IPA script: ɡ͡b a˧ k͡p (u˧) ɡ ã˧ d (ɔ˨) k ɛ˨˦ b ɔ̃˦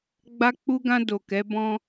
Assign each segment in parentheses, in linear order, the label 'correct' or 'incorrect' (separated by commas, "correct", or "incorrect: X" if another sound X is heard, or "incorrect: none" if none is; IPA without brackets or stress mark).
correct, incorrect: o˨